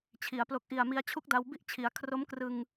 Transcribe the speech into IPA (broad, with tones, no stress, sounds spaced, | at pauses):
t͡ɕʰ i˩˦ a̯ p l o˨˩ k̚ ʔ i˨˩ a̯ m i˧ a̯ t͡ɕʰ u˦˥ k̚ d a˧ w b i˥˩ ʔ t͡ɕʰ i˩˦ a̯ kʰ r o˦˥ m k r ɯ˧ ŋ